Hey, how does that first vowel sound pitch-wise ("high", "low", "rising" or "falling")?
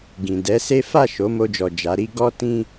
low